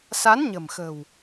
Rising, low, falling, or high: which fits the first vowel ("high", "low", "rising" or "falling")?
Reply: rising